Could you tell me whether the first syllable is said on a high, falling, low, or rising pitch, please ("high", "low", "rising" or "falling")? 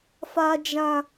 high